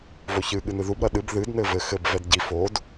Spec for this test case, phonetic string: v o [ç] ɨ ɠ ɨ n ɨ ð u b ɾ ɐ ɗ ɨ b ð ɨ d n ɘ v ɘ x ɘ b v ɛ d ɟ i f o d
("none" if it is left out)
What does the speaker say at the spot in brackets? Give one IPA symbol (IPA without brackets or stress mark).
ç